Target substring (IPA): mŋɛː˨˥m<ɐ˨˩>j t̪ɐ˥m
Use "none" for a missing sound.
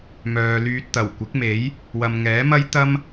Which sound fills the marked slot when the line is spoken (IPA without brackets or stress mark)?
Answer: ɐ˥